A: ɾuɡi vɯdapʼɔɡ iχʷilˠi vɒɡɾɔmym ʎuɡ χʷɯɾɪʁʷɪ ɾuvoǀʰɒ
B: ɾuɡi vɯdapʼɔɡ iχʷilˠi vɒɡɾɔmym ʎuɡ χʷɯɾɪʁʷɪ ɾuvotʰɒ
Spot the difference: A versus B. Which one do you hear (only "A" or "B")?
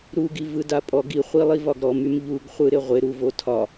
B